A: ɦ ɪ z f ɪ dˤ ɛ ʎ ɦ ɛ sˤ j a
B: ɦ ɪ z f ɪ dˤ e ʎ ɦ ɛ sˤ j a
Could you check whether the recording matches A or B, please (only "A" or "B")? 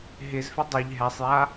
B